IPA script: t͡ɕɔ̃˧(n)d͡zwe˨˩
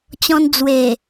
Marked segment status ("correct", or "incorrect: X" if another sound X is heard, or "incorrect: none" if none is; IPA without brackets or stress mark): correct